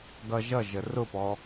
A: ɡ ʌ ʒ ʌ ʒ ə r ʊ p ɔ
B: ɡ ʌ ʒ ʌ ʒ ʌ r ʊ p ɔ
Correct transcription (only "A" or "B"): A